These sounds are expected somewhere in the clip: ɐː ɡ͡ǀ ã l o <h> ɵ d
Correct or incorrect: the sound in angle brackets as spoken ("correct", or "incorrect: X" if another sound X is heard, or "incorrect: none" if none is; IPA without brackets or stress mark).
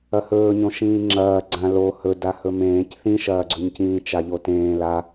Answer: correct